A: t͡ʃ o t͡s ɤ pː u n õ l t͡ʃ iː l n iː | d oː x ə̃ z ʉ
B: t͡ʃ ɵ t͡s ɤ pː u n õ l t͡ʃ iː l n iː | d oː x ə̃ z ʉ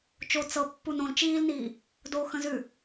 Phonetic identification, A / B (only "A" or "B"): A